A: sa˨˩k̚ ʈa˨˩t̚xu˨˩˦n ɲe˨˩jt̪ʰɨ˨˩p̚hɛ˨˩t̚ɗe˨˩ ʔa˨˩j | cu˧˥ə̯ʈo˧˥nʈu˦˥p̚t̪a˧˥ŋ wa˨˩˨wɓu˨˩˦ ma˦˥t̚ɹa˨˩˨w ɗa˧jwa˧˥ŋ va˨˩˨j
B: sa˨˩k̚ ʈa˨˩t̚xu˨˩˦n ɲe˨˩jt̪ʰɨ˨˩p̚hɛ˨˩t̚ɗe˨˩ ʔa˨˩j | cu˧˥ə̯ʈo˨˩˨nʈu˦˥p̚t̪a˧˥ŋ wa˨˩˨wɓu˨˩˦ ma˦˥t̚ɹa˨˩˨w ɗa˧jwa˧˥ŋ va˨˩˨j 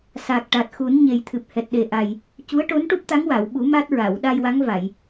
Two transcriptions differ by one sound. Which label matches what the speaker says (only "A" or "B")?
A